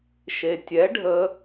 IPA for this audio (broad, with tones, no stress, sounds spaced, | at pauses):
ʃ e˩ tʲ ɛ˩˥ ɖʱ ə˧